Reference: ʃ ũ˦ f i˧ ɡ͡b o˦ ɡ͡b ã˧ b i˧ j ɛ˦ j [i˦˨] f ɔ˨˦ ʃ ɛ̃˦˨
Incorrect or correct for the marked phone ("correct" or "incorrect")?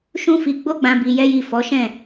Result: correct